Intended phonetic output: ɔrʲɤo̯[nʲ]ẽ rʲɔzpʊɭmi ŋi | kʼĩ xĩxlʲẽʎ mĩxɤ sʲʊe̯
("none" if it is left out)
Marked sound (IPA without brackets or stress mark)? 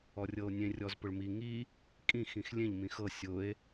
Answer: nʲ